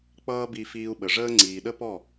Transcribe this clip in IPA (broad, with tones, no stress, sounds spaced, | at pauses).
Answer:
k͡p ʌː˦ b i˧ f iː˧ u̯ ɓ ə˨ ʐ əː˦ ŋ͡ǀ iː˨ ɗ ə˦ p ɔ˦˨